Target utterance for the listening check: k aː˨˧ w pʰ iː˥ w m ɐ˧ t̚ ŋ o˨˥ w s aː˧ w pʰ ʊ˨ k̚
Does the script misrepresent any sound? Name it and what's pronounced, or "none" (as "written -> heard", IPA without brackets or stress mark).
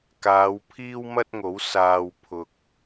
ɐ˧ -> ɐ˥